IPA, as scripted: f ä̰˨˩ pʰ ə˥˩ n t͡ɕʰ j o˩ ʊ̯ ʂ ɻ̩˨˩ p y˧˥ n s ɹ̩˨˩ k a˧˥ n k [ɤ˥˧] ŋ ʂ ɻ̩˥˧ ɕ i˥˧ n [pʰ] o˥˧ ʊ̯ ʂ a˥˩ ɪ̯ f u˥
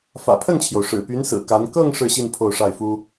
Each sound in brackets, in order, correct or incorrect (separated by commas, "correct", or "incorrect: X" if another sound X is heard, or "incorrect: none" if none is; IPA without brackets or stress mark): correct, correct